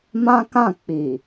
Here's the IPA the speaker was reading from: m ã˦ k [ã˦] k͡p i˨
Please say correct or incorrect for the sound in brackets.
incorrect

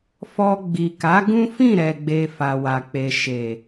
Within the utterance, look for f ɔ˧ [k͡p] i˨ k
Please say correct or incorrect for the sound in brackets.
incorrect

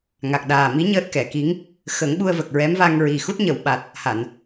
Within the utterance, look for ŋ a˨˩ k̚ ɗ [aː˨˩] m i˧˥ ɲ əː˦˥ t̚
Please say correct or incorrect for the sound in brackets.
correct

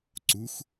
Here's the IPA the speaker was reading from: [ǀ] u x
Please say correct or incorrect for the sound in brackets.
correct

